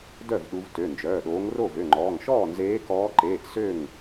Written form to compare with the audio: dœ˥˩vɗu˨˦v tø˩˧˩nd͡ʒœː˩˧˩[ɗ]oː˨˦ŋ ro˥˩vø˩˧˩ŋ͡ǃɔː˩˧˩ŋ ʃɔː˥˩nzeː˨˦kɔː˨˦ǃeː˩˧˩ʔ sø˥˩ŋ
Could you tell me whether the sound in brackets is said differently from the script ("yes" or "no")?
no